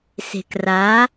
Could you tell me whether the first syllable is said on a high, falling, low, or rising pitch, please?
low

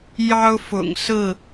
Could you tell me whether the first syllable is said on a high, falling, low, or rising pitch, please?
high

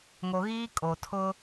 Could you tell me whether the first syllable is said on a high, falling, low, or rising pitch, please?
low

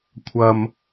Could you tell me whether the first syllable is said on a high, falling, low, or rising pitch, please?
low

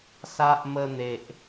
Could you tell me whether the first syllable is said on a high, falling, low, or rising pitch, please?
high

